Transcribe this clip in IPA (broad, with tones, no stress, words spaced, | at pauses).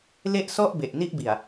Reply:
le˥˩ʔsɔ˥˩ʔ be˨˩ʔni˥˩ʔbi˨˩a̯